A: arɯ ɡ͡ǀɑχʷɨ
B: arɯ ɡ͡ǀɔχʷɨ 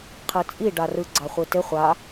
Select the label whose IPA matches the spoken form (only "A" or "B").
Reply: A